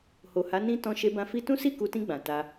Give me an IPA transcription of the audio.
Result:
ho˨ha˨˦ nĩ˦ tɔ̃˧ ʃe˧bã˧ fi˦ tũ˦si˦˨ku˨˦tĩ˧ ɡ͡bã˨ta˧

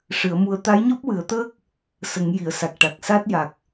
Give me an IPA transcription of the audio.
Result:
ʂɨ˨˩˦ə̯mu˧ə̯ t̪a˧˥jɲɔ˦˥p̚wɨ˨˩˦ə̯t̪əː˦˥k̚ | sə˨˩˦ŋ ji˨˩˨ə̯sa˨˩k̚ʈa˨˩k̚ sa˦˥t̚ ja˨˩k̚

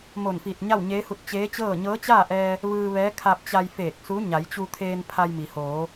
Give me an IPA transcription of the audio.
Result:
mo˧˩nfiː˧˩t̚ ɲa˥˨wɲeː˧˥hu˧t̚ t͡ɕeː˧˥t͡ɕɤː˥˨ ɲɤː˧˥t͡ɕaː˥˨ʔɛː˧ | ʋɯː˧ʋɛː˧˥kʰa˧p̚t͡ɕa˧j feː˧˩k̚su˧˥ ɲa˩˧jt͡ɕu˧t̪ʰeː˧n pʰa˧jmi˩hoː˩˧

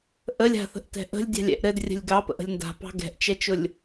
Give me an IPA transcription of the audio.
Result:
ʔəlʲ a̤θə̤ʔtɛ̤ ʔə̤lʲdʲɑ̤lʲɛ̰ʔ ɾɘdrʲə̤lʲ ɡɑpə̰ʔə̤lʲ nda̤pɑ̤ ɡɛ̤ʔt͡ʃɛt͡ʃʊlʲ

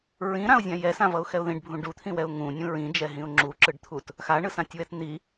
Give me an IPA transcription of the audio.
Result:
ɹĩɾãʊ̯zʲã jɛsãvʌʊ̯xɛʊ̯ ðĩɖbʱũ ɖut̪ʰĩwɛʊ̯ ŋũnʲũ ɹĩd͡ʒɛɦĩʊ̯ ŋ͡ǁuǁɯɖt̪ʰut | xaɳɯsãtʲwɛt n̪i

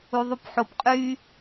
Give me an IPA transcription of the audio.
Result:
uðˤupħop qʼy

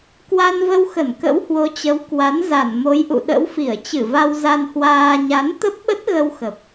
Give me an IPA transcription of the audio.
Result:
kwa˧nvə˧wxə˧˩n kə̰˧˥whwo˨˦t͡ɕə˨˦w kwa˨˦n za˧˩nmo˨˦jʔṵ˧˨ ɗə̰˧˥wfi˧˩ə̯t͡ɕɨ˧˩va˧w za˧nhwaː˧ ɲa˨˦n t̪ə˦˥p̚ɓə˦˥t̚ɣə˧w xə˨˩p̚

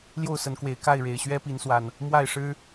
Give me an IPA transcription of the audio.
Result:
ljo˥˨ʊ̯sə˨˦nkwe˨˩ɪ̯ ka˥˨ɪ̯ɻe˨˩ɪ̯ɕɥɛ˦ pi˨˦nswa˨˩n | mwa˥˨ɪ̯ʂɻ̩˦

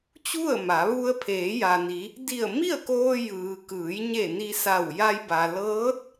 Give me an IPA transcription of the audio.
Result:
t͡ɕu˥˨ə̯ma˩˧ ʋu˧ə̯pʰeː˩˧ja˩ni˩˧ | di˧˩ə̯mi˥˨ə̯koː˧ jɯː˩kɯː˩˧jɲe˧˩ ni˧sa˧˩w ja˧jba˩ lɤː˧˥t̚

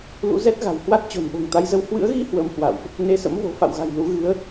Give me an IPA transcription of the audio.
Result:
lṵ˧˥zɛ˦˥t̚ɣa̤˨˩w hwa˦˥t̚ t͡ɕo̤˨˩nɓo̤˨˩ŋt̪a˨˦jzə˨˦w hwɨ̰˧˥ə̯ɣi˧ hwəː˧mhwa̰˧˨wʔ | ne˧sə̰˧˥mvo̤˨˩ fa̰˧˨wɣa̤˨˩j lu˨˦ɣɨ˨˦ə̯

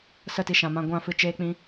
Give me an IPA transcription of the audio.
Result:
sə˦˨ti˧ʃã˨mã˧ ɡʷã˦˨fɨ˧t͡ʃeː˦k͡pĩ˦

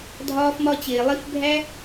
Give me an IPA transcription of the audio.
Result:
dʱɒː˦fmɒ˦ t͡ɕeː˨lˠi˧fbʱæ˦

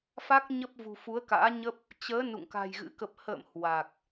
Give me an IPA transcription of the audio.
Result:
fa˦˥k̚ɲə˦˥p̚ vṳ˨˩fu˨˦ə̯ka̰ː˧˥ɲə˦˥p̚ | t͡ɕəː˨˦ nṵ˧˨ŋka̤˨˩jɣɨ̰˧˥ kə˨˩p̚hə̰ː˧˨m hwa˨˩k̚

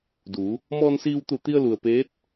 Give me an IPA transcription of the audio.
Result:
du˩˧ | mɔː˧nsiː˧wt̪u˧˩t̪i˧ə̯ lu˩ə̯peː˧˥t̚

